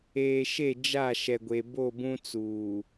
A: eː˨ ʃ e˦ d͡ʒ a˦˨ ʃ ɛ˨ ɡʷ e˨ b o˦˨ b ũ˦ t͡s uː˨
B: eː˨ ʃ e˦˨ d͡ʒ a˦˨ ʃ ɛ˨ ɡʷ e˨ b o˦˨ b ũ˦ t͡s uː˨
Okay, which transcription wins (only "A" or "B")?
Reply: B